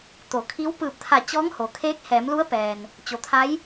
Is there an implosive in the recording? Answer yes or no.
no